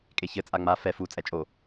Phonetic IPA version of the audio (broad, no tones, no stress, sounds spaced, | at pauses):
kʼ e ç ɘ t͡sʼ a ŋ͡m a f ɛ f u t͡sʼ ɛ t͡ʃʼ o